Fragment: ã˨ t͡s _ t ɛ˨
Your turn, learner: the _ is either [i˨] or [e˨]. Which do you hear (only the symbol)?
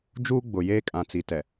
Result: i˨